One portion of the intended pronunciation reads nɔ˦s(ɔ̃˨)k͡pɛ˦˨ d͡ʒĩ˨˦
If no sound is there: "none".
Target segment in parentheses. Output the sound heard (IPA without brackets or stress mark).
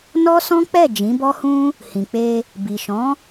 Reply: ɔ̃˦